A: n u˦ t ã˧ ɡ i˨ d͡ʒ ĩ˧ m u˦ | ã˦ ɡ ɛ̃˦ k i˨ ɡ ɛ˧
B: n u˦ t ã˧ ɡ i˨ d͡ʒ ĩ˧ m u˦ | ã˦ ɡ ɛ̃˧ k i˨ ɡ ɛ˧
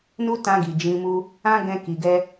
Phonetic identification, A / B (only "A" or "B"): B